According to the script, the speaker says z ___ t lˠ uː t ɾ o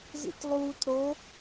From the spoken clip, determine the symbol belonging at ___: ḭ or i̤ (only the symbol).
ḭ